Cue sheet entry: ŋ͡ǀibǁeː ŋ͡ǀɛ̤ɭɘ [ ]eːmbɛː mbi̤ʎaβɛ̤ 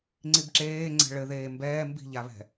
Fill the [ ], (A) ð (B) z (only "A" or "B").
A